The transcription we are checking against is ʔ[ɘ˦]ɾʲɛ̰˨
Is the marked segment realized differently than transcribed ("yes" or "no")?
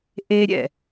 yes